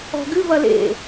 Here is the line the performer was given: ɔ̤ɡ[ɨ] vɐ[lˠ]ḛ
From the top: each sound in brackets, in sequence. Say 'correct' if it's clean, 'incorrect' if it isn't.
correct, incorrect

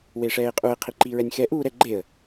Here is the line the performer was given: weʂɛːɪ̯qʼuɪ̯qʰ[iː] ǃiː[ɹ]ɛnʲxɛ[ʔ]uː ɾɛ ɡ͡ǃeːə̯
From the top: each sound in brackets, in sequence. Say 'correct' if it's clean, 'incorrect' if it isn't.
incorrect, correct, correct

